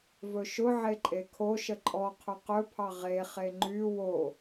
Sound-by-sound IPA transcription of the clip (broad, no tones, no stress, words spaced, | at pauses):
vɵʃʊʕe ǃʼekʰoʃə ǃʼɔqʰʊ qɵpʰɑ ʁeχe ŋ͡ǃy wo